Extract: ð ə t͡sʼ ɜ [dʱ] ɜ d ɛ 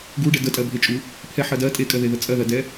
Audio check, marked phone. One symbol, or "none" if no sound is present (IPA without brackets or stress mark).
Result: ð